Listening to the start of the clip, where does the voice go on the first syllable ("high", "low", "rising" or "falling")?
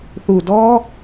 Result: low